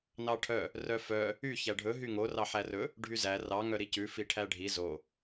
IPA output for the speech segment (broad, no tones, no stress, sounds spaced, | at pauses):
n ɑ ʈʰ œ | r œ f œ | y ç æ ɖʱ ɵ ɦ y ŋ o r ɑ ħ æ r ɵ | ɖʱ y z æ r ɑ ŋ œ ɾ i c ʉ f i ʈʰ æ ɖʱ i z o